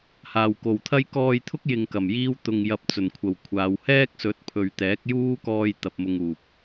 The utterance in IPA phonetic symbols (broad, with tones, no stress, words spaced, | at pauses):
haː˨˩wko˨˩wt̪ʰɐ˥j kɔː˧jt̪ʰʊ˥k̚ jɪ˨ŋ kɐ˨˩mjiː˥w t̪ʊ˨ŋ jɐ˨p̚t͡sɵ˨˩nkʷʰɐ˨˩w kʷʰaː˨˧w hɛː˥k̚sɵ˨˥t̚pʰɵ˨ɥ t̪ɛː˨˥k̚juː˥ kɔː˧jt̪ɐ˨p̚ mʊ˧ŋuː˨p̚